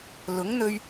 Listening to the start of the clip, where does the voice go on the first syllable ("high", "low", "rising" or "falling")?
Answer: rising